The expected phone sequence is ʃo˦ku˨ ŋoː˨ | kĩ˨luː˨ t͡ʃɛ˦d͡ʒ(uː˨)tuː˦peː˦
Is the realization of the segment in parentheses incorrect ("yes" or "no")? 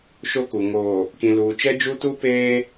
yes